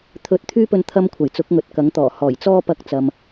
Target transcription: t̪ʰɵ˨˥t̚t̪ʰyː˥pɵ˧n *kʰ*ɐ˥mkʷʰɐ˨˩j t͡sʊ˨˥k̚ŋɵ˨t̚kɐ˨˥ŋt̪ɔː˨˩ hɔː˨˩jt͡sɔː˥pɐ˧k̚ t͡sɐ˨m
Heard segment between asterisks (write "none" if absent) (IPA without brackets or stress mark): t̪ʰ